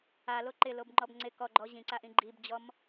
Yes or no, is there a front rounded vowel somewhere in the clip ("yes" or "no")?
no